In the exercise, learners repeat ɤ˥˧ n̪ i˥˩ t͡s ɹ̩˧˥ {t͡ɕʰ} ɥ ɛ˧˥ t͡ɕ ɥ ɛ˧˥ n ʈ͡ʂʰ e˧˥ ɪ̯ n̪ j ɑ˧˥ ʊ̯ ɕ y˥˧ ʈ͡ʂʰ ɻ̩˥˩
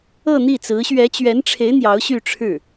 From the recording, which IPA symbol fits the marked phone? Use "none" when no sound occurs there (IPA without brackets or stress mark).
ɕ